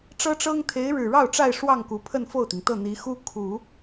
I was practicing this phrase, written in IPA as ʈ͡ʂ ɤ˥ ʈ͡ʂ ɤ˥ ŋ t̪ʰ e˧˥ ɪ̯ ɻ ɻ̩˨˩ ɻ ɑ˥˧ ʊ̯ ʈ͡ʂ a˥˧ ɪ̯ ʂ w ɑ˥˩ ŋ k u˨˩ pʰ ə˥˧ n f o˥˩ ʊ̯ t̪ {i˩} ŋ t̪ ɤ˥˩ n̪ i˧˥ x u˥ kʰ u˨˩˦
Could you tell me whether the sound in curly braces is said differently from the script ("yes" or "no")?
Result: no